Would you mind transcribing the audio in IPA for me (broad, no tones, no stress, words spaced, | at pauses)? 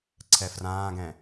ǀʰɛfrãːɡɛ̃